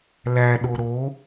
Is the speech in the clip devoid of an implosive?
no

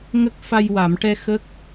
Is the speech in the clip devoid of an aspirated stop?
yes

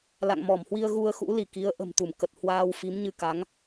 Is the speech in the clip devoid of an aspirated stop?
yes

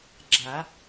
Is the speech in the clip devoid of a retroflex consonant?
yes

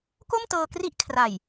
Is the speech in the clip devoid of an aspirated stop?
no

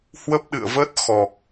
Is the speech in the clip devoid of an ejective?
yes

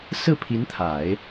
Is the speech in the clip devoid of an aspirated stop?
no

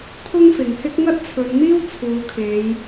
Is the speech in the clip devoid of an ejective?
yes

